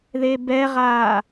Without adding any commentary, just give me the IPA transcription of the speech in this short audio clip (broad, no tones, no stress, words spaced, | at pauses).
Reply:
ðebɛʁaː